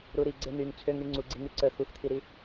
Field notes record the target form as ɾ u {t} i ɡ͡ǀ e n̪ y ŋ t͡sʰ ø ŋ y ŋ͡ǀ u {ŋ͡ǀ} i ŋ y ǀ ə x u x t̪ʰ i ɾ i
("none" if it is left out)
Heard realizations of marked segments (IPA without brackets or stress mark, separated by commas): ɾ, ɡ͡ǀ